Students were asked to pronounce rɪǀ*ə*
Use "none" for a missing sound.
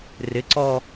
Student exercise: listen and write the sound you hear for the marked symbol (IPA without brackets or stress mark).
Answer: ɔ